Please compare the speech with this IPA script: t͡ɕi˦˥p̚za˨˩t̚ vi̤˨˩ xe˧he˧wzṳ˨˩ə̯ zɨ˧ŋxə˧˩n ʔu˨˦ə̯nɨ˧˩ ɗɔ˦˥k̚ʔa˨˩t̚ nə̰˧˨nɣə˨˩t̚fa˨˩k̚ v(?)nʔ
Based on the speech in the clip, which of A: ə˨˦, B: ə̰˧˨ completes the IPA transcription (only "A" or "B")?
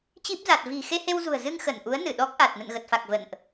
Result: B